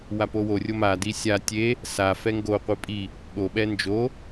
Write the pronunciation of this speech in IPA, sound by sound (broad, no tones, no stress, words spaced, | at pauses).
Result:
wapoworʲo madi sʲa tʲe | sa fɛŋɡoqʷi pʼi | ɠoɓɛ nd͡ʒo